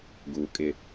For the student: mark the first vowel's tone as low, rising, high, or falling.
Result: low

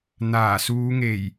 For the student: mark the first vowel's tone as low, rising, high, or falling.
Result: low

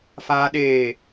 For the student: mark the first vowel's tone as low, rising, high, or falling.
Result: high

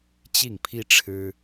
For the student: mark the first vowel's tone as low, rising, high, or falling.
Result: falling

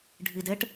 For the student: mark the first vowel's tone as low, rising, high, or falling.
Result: low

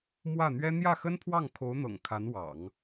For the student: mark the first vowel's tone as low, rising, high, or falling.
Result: falling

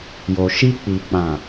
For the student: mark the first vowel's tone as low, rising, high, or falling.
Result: low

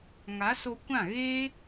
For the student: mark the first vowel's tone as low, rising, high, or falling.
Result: rising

